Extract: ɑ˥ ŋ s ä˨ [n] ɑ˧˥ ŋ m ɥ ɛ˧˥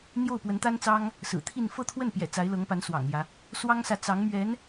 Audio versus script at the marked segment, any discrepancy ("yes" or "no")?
yes